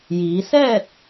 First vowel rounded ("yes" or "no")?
no